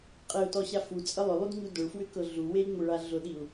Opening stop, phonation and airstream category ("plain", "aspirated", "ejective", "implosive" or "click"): ejective